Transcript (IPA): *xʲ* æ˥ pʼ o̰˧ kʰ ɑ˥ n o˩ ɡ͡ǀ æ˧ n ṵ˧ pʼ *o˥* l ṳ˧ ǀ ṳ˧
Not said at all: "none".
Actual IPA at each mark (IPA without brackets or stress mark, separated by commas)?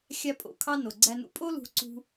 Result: xʲ, o˥